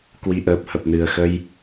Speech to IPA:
kwi˨˩ʔəː˨˩p̚hə˨˩p̚nɨ˨˩ə̯ xə˧j

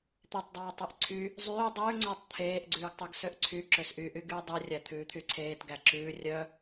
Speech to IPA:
t̪etˤdˤɑːtˤeʔ ǀʰy | zˤyː dˤʉːŋ͡ǀɵːtˤ t̪ʰeːʔɡ͡ǀʉːɡtˤuɡ søʔǀʰy ǁøsʔyʔy ɡyːdˤʉ rʲæt̪ʰʉːt̪ʰyǀʰeːt ɡæǁʉː rʲœ

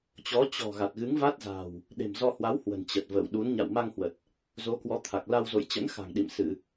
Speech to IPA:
t͡ɕɔ˨˦ t͡ɕɔ̤˨˩ ɣa˨˩t̚ɣɨ˨˦ŋva˦˥t̚za̤˨˩w | ɗe̤˨˩mzɔ˧hwa˨˦whwə̤˨˩n t͡ɕə˨˩t̚və̰ː˧˨w ɗu˨˦n ɲa̰˧˨wma˧ŋhwə˨˩t̚ | zo˨˦kwɔ˨˦t̪ʰa˨˩k̚ la˧wzo̰˧˨j t͡ɕə̰˧˥nxa̤˨˩ŋ ɗḭ˧˨m sɨ˧˩˨

